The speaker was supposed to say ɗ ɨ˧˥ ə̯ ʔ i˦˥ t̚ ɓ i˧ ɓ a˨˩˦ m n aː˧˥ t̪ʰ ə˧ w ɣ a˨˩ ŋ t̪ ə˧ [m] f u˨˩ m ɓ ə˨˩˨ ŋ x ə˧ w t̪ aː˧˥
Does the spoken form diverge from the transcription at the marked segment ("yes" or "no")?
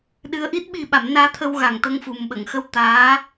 yes